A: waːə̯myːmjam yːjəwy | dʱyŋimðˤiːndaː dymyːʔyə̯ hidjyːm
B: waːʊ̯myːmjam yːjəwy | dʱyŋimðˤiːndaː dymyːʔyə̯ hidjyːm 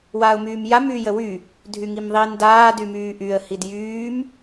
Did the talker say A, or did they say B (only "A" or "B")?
B